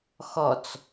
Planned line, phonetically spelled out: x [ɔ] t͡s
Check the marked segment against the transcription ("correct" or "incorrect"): correct